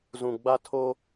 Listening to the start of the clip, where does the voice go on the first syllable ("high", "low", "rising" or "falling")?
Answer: low